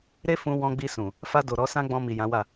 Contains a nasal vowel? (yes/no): yes